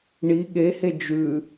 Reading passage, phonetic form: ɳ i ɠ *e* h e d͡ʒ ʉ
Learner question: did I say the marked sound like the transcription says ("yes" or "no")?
yes